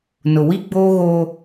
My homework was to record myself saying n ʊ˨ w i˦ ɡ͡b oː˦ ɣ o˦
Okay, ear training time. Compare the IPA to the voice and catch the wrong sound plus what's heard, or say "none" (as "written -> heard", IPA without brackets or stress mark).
none